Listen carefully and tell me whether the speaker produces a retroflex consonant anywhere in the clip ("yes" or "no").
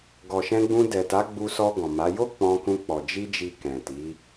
no